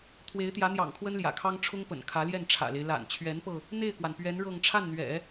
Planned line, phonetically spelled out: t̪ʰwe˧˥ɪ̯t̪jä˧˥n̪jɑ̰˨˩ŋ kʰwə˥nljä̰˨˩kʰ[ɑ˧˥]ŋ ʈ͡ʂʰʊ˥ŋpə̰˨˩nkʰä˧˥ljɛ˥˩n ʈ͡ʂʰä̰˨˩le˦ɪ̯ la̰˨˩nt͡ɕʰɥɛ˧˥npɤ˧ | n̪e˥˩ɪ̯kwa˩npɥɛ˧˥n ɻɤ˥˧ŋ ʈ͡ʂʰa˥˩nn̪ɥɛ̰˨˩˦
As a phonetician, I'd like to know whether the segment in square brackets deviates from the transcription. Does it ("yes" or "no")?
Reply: yes